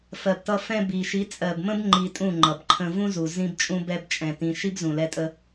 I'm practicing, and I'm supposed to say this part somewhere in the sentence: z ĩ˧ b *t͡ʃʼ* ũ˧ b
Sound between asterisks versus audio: correct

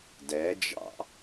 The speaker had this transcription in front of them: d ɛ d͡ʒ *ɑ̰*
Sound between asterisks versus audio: correct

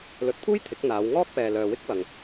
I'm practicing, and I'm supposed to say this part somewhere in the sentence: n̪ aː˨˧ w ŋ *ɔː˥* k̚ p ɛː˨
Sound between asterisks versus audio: correct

